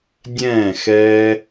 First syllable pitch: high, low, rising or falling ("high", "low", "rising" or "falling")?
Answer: falling